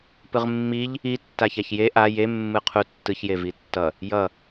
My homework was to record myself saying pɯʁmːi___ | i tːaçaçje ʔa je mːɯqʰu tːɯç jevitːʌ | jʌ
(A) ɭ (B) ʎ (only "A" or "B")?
B